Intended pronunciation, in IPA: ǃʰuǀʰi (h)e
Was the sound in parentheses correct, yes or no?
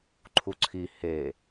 yes